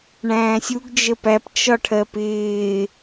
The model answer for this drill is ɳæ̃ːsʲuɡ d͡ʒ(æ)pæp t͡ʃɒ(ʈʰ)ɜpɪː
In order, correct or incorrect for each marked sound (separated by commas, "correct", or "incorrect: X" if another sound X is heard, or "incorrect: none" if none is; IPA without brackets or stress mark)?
incorrect: ə, correct